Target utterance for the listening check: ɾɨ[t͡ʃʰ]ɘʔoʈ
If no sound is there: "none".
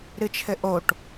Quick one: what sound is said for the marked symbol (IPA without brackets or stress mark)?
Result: t͡ʃʰ